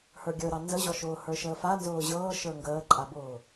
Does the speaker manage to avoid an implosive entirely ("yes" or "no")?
yes